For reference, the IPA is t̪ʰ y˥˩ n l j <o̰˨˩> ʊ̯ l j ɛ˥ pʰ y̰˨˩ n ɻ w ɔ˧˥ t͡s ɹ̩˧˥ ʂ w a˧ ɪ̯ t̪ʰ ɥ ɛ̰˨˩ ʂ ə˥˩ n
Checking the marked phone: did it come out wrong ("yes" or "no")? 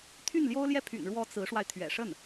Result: yes